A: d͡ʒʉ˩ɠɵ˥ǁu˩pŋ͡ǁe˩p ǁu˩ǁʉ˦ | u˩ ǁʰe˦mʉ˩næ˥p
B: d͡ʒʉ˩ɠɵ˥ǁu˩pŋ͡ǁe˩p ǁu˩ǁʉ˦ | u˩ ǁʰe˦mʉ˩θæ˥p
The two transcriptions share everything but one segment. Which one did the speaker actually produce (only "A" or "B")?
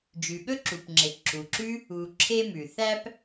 B